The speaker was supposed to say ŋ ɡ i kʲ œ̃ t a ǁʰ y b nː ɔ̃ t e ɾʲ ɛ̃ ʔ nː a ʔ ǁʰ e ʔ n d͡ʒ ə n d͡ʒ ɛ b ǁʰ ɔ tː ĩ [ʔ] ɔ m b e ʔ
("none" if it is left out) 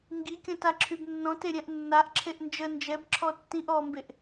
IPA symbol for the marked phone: ʔ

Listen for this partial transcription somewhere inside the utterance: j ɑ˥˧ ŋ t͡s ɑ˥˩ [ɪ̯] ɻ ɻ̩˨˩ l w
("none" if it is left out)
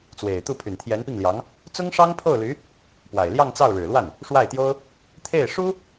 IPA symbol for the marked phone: ʊ̯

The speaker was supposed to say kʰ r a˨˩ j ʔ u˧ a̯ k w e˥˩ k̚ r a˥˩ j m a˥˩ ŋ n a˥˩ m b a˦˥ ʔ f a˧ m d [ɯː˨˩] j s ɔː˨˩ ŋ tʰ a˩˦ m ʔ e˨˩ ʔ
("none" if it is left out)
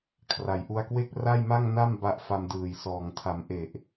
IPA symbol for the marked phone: ɯː˨˩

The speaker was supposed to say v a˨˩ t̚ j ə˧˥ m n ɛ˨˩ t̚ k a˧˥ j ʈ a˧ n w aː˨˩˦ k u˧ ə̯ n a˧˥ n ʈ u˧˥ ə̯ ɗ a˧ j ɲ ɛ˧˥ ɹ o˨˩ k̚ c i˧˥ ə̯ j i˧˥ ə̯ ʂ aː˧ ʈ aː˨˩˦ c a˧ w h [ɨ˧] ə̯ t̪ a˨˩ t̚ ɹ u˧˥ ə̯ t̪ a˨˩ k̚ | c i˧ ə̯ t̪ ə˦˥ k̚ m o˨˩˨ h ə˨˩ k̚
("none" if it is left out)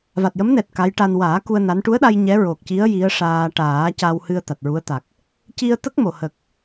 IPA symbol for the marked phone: ɨ˧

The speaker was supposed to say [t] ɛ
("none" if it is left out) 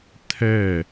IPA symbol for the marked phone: tʰ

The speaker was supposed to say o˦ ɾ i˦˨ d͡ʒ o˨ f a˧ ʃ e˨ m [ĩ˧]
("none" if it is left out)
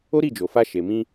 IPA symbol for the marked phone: ĩ˧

